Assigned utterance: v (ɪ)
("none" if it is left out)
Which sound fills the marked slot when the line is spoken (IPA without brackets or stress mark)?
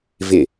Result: ɪ